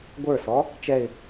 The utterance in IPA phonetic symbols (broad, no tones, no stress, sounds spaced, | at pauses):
ɡʷ ə˞ s ɔ | t͡ʃ ɛ ɪ̯